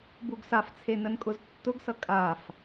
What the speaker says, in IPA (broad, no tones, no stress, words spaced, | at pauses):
buɡsaft͡sʰe nənkʼʊztːʊɡsʌ kʼaf